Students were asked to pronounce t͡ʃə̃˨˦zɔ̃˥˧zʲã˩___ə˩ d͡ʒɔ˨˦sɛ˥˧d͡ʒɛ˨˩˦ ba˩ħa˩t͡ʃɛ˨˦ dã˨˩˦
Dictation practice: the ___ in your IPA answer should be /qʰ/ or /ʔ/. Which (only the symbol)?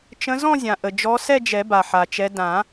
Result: ʔ